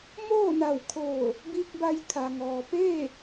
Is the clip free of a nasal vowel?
yes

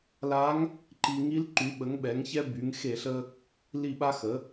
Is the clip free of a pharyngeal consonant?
yes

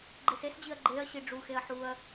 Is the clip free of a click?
no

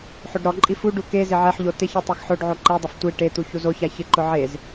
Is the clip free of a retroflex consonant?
no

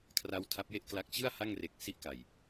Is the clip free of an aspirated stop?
no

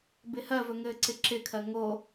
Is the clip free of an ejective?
yes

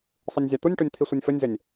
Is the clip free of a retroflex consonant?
no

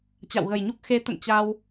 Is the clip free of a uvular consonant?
yes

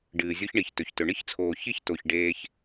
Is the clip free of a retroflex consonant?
no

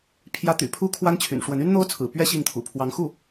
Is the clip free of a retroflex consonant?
no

